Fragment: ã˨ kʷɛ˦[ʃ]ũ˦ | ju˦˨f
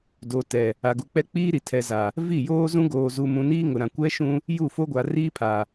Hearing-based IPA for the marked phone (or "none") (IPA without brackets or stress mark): ʃ